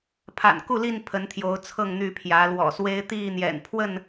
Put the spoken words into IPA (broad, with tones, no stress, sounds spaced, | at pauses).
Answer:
pʰ a̰˨˩ n k u˥˨ l i˥˨ n pʰ ə˨˦ n t̪ʰ j o˨˦ ʊ̯ t͡sʰ ɤ˥˨ ŋ n̪ y˥˨ pʰ j ä˨˦ l w ɔ̰˨˩ s w e˦ ɪ̯ t̪ i˥˨ n̪ j ɛ̰˨˩ n pʰ w ə˥˨ n